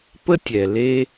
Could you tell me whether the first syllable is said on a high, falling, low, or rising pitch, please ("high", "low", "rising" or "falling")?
high